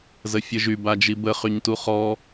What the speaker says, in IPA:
z ə fʲ ə ʒ y b a d͡ʒ i b ə χ y ɲ t u χ ɔ

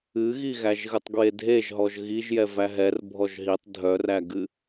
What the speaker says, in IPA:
ɨ ɣ i ɣ æ ʒ ɣ ɨ tˤ ɡ w e dʱ e ʒ ɦ ɔ ʒ ɣ i ʒ j ɛ v æ ɦ ɛ r bʱ ɔ ʒ ɦ i tˤ dʱ œ r æ ɡ ɨ

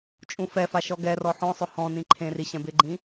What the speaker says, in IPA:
t͡ʃʼ ũ f ɛ f a ʃ ɔ ɡ ɛ r ɔ ħ ɔ̃ sˤ ʊ h ɔ̃ n ĩ ǃʰ ẽ r i ɕ ɛ̃ b ɪ ɡ͡ǃ ĩ

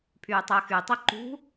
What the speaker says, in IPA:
pʰ yː tˤ əː x y tˤ œ ǃ ṳ

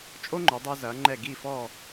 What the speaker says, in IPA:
t͡ʃʼ o˥ ŋ͡ǃ o˩˧ dˤ ɤ˧ z ɐː˩˧ ŋ͡ǃ ɛ˧˩ ɡ iː˧˩ f ɔː˧˩

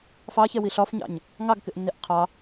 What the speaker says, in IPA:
f ɑ ç ɛ w i ɬ ɒ f ɲ ɑ̰ ɲ | ŋ ɑ ɡ k ɪ ʔ nː i ʔ qʰ ɑ

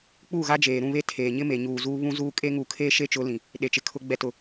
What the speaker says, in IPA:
k͡p uː˦˨ ɣ a˦ d͡ʒ eː˨ ɾ ũ˦˨ β e˦ tʰ eː˨ ɲ ɪ˦ m e˨ ɲ uː˨ z uː˦ β ũ˦ z uː˦ kʼ e˦ ŋ uː˨ kʰ eː˦ ʃ e˦ t͡ʃ ʊ˨˦ l ĩ˨ | ɗ e˨ t͡ʃ ɪ˨ kʰ ʊ˨ ɡ͡b ɛ˨ t ʊ˨

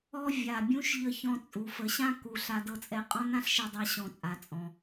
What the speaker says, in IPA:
ɔ˧ vʲ a˩ bʲ ũ˧ ʃ ʎ ə˧ ç ɔ̃˧ t͡sʼ u˩ f ə˩ ɕ ã˥ k u˩ ɬ a˧ d ɤ˧ t͡sʼ ɛ˧ qʼ ɔ̃˥ n ã˥ ɬ ʃ ɛ˧ dˤ a˧ ɕ ɔ̃˩ t͡sʼ a˩ t͡sʼ ɔ̃˩

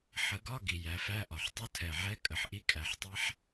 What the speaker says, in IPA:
ħ ə˨˩˦ ɡ ɒ˧˥˧ ɡ i˨˩ j æ˨˩˦ f æ˧˥˧ ʔ ɒ˨˩ ħ tˤ u˧˥˧ tʰ ɛ˨˩ ʕ ɛ˦˥ kʼ ə˨˩ ħ ʔ i˦˥ kʼ æ˨˩˦ ħ tˤ ɛ˦˥ ħ

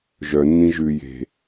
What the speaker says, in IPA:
ʒ œ nː ĩ ʒ ʉ j e̤

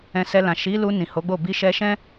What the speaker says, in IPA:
ɛ̃˧ s ɛ˧ l ã˨ ʃ i˨˦ l u˧ n ĩ˨ h o˨˦ ɡ͡b o˦˨ b i˧ ʃ ɛ˧ ʃ ɛ̃˦

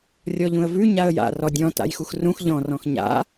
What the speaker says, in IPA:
rʲ ɔ ʎ ũ ə̯ v ʉ ɲ a ə̯ j a̰ r ɔ dʲ ɔ̃ t a̰ j x u x r ũ x ʎ ɔ̃ r ɔ̃ x ɲ a̰

